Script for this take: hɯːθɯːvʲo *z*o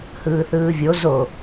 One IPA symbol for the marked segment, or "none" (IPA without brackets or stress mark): z